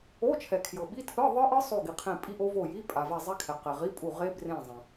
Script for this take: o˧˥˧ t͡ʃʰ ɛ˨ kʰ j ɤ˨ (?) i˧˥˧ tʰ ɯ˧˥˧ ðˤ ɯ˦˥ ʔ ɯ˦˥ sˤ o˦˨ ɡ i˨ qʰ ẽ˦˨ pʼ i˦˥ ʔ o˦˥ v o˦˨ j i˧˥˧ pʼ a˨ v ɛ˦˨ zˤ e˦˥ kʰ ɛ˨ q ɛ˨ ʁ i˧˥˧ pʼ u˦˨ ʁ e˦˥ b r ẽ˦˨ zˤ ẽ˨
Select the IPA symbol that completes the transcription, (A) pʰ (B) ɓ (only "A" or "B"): B